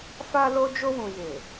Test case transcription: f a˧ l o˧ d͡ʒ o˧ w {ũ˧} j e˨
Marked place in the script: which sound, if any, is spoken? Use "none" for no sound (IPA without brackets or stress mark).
ũ˨